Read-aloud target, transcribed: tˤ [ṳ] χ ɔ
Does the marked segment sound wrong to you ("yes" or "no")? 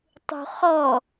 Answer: no